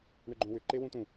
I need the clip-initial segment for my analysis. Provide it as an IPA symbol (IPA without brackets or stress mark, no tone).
ɳ